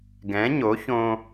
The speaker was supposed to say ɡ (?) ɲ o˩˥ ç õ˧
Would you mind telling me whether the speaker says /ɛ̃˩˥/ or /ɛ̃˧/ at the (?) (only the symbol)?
ɛ̃˩˥